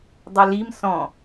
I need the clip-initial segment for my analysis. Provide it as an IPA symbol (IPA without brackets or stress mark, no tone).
dˤ